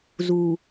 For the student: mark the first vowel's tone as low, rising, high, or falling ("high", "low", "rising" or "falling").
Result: low